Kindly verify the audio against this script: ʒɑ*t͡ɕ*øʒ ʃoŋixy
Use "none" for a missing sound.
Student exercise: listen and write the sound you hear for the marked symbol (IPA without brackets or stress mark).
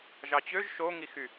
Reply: t͡ɕ